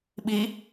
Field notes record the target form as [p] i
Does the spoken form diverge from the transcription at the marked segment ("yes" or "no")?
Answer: yes